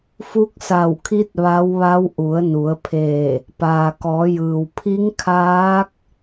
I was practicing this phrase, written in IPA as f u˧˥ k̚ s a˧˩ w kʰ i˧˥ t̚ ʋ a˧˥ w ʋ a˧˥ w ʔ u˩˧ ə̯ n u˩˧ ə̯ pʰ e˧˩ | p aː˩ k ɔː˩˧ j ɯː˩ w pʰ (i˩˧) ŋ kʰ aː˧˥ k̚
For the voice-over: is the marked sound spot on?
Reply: no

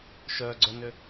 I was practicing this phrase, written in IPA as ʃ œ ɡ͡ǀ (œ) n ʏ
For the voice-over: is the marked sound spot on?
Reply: yes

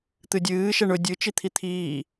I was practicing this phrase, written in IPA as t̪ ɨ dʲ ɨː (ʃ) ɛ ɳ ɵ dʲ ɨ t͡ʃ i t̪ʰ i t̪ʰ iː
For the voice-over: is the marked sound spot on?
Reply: yes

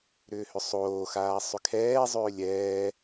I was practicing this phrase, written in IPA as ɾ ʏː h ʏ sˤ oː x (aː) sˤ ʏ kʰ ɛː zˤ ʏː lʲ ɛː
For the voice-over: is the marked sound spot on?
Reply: yes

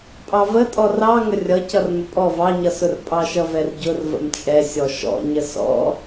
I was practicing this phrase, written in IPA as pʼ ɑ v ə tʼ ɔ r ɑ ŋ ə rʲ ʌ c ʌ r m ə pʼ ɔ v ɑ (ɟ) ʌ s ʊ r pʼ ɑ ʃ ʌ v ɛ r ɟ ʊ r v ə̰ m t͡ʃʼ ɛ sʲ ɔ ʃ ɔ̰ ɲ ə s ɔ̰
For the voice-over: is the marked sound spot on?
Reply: no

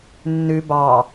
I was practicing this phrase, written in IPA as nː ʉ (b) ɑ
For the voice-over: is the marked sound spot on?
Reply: yes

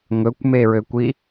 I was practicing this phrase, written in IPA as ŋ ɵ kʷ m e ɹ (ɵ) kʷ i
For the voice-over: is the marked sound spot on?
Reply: no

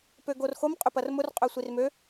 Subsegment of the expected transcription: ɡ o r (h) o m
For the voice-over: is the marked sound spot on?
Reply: no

